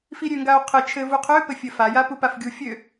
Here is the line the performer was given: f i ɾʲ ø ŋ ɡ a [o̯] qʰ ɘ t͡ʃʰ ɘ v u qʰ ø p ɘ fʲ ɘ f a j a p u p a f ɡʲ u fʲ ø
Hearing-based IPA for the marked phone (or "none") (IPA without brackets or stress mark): o̯